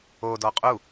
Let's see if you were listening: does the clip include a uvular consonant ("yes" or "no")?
yes